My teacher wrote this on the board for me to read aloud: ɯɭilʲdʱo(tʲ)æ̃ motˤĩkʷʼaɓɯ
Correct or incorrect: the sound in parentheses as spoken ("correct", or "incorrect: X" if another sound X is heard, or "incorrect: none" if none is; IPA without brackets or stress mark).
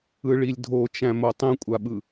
incorrect: t͡ʃ